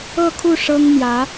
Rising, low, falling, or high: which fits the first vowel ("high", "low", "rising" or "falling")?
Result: falling